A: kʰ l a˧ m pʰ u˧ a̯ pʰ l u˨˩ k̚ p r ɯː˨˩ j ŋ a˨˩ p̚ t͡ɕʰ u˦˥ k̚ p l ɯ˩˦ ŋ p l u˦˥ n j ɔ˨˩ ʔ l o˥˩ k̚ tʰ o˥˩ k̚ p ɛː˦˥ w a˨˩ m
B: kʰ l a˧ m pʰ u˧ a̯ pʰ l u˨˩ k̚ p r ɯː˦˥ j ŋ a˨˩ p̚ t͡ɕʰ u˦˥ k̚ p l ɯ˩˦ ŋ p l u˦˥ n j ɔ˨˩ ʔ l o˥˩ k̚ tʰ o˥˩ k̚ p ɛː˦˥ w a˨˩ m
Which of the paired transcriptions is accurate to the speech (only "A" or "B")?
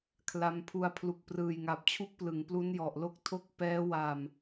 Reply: A